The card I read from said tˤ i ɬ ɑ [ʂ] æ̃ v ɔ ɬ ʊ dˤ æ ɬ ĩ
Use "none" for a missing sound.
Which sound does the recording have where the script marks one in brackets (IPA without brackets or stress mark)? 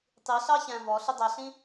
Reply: ç